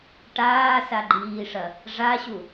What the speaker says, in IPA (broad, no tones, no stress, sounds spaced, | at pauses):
ʈ aː s a ɡ͡ǃ iː ʂ ɐ | ʐ a ɕ u